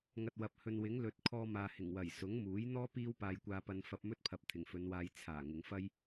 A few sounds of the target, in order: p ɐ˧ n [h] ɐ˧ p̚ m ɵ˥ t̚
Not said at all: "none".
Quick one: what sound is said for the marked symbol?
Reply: f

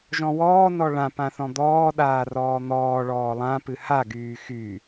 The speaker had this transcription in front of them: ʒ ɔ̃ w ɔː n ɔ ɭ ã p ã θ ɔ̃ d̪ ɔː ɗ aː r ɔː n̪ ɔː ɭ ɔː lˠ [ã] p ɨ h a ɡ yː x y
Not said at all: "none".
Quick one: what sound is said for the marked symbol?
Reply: ã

